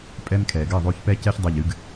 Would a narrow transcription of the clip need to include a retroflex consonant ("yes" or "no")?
no